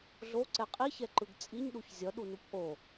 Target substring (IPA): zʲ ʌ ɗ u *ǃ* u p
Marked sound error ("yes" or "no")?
yes